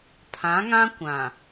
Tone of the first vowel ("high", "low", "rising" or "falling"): rising